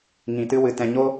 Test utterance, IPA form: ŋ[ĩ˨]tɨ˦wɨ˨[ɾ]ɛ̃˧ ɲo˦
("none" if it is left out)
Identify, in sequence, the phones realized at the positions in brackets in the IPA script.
ĩ˨, t

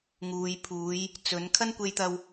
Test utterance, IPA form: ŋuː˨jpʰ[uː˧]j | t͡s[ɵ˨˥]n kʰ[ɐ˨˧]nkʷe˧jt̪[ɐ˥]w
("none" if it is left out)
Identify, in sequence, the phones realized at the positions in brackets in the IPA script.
uː˨˧, ɵ˨˥, ɐ˥, ɐ˧

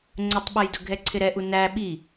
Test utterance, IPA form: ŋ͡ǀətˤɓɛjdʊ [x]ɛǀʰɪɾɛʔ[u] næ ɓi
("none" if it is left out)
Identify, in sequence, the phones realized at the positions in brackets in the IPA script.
ɡʱ, u

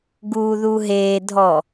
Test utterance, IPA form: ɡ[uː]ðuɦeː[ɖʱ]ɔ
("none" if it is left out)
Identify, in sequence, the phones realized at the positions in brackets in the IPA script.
uː, dʱ

